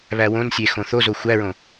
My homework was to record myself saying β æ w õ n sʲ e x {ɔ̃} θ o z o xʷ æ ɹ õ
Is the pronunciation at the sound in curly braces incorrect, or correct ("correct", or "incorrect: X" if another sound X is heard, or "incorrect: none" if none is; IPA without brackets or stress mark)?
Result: incorrect: õ